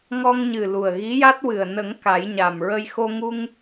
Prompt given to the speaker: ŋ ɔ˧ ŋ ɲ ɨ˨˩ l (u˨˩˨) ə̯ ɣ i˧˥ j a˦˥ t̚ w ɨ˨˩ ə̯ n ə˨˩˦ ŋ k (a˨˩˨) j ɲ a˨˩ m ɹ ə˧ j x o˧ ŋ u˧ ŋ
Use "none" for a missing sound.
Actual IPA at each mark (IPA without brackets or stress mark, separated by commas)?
u˨˩, a˨˩˦